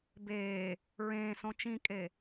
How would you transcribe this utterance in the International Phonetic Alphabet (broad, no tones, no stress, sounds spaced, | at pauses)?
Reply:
b eː | ɹ ẽː s õ t͡ʃ ĩ kʼ e